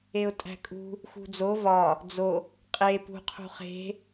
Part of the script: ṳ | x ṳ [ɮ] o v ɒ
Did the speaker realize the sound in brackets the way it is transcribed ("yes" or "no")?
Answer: no